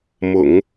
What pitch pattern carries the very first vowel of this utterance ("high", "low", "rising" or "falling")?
low